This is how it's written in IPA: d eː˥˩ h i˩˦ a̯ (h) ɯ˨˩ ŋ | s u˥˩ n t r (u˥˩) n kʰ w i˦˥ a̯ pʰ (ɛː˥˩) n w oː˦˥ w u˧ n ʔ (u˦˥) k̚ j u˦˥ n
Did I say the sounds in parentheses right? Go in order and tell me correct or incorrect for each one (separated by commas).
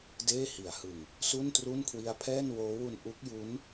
correct, correct, correct, correct